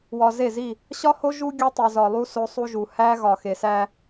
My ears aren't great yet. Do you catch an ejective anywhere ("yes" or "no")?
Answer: no